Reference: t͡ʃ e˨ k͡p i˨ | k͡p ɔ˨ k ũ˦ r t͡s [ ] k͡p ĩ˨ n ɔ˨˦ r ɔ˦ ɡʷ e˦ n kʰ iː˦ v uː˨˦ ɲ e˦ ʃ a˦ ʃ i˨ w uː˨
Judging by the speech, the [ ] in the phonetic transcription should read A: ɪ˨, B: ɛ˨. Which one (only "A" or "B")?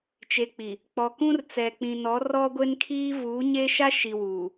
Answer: B